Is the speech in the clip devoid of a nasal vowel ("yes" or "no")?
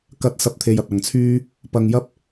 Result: yes